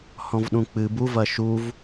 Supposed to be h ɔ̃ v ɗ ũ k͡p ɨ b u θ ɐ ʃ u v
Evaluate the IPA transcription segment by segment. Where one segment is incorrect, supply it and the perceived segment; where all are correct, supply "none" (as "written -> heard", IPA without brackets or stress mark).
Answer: θ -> v